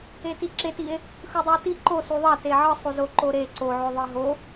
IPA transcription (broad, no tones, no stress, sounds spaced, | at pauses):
e t i ǁ e t i e̯ | x ɯ dˤ u o̯ t i ǃ o s u ðˤ ɑ t e ʕ ɯ sˤ u z o ǃ o ɾ e ǀ o ʕ o ðˤ i ɦ o